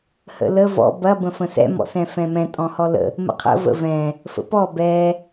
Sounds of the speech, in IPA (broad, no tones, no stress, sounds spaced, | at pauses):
h ə̰ l ə v ɔ̰ b ɐ b ə̃ f ə̃ s ɛ̰ m ɔ̰ s ɛ̃ f ɛ̃ m ɛ̃ tʼ ɔ̃ h ɔ l ə̰ | m ə̰ qʰ ə̰ v ə̰ v ɛ̃ | f ə̰ p ɔ b ɛ